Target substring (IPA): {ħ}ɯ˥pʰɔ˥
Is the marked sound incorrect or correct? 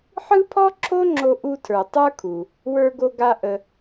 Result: correct